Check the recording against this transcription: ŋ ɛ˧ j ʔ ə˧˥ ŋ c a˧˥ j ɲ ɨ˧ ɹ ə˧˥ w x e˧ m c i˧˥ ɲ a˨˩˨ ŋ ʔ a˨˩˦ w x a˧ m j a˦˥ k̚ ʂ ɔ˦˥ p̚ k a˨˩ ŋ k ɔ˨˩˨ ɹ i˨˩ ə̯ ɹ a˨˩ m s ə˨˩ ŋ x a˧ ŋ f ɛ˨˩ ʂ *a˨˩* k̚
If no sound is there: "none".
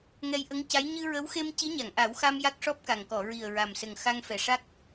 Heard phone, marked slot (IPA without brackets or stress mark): a˦˥